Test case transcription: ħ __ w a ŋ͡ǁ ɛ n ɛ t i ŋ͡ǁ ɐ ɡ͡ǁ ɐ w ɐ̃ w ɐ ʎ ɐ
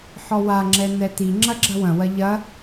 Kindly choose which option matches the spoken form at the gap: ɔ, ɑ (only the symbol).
ɔ